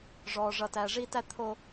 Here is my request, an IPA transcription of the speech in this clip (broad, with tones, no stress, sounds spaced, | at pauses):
ʐ ɔː˨ ʐ ʌ˨ t æː˨ ʐ iː˦ t æ˦ t̪ʰ o˨